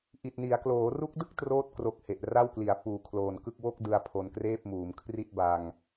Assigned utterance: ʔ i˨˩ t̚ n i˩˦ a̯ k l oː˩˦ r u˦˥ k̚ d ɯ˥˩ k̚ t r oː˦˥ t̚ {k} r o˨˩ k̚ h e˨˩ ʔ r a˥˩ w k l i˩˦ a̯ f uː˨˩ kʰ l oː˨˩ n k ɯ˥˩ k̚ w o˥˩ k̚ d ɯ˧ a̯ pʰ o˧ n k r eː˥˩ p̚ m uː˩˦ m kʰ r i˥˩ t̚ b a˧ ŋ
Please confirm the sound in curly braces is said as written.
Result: yes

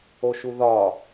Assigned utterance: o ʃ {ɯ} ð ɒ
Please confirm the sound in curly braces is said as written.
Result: no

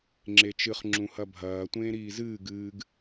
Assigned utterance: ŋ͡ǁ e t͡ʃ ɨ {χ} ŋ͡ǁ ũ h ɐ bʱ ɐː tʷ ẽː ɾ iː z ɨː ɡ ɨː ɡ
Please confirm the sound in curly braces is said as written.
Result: yes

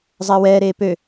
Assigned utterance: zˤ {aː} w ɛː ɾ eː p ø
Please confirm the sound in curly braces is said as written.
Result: no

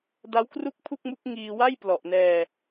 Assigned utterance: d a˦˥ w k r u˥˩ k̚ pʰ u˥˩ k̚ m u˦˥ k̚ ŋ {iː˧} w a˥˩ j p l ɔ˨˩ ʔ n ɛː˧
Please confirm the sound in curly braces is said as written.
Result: yes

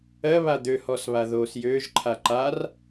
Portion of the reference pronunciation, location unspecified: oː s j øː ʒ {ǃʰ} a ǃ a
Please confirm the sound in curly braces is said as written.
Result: yes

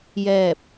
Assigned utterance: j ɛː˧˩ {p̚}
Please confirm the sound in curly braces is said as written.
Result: yes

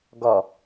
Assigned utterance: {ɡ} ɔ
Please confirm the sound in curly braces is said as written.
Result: yes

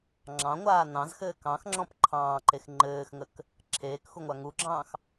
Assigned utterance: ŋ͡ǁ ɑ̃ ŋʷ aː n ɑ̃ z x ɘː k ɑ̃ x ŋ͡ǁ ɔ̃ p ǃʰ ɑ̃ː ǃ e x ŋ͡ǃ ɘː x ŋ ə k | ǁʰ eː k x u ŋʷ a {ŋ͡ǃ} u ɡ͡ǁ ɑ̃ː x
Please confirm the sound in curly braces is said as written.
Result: no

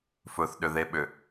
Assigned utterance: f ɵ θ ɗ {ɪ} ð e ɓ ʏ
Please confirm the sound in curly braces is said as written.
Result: no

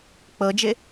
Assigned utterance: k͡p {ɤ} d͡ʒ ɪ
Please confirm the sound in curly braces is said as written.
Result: yes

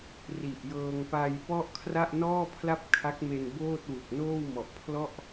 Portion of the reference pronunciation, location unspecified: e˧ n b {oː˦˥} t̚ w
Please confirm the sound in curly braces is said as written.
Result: no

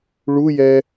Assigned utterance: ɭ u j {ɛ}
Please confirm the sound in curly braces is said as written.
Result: yes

